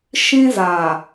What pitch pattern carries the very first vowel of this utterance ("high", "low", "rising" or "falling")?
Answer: high